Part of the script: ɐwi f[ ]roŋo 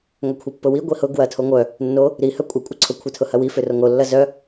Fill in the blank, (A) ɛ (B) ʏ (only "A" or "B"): B